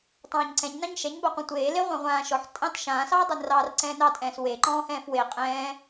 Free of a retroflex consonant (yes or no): yes